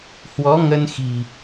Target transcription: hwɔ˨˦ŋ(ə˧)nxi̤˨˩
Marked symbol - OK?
yes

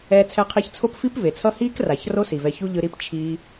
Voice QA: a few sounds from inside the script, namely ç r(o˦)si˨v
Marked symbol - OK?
yes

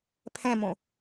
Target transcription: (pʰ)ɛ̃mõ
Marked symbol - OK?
yes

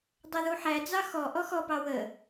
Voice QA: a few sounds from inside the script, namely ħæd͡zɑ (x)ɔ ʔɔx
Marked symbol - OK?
yes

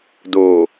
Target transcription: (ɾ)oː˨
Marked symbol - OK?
no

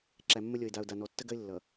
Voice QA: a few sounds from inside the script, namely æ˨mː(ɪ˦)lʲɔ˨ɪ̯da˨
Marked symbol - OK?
no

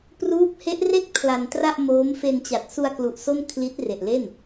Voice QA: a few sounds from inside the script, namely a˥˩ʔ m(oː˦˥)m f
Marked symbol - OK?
yes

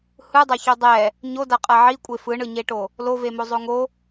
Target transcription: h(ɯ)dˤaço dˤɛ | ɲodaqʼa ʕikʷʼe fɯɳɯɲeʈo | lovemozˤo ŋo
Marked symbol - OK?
yes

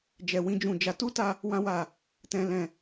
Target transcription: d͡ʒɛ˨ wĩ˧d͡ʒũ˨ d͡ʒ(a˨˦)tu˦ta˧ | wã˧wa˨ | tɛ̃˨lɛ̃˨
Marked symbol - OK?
yes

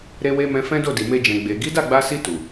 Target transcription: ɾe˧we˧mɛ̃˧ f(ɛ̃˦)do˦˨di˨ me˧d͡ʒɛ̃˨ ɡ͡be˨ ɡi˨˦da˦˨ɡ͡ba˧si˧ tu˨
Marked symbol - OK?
yes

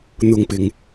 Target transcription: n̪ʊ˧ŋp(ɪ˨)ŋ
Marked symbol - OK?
yes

